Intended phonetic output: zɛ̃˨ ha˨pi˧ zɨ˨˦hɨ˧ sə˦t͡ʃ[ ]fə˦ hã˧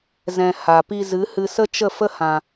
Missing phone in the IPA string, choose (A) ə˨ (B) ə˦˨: B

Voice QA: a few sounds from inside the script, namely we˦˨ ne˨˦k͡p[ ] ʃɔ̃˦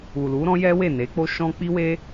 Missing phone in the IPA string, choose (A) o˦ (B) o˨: A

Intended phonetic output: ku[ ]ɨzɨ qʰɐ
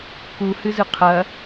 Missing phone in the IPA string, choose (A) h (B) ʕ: A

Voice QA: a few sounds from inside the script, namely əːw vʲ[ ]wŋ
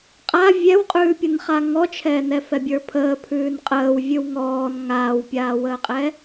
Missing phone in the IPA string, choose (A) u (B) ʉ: B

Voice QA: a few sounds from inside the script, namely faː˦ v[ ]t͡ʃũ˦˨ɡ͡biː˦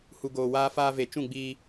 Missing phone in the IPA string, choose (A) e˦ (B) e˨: B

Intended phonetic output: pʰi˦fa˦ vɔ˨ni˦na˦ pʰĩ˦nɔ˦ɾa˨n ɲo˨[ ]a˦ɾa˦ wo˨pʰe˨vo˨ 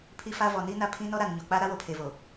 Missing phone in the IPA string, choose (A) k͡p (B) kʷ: A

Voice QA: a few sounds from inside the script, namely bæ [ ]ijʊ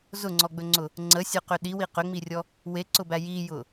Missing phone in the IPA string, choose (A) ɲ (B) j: B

